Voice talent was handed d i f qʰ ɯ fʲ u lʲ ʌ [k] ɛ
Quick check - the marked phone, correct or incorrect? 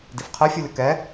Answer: correct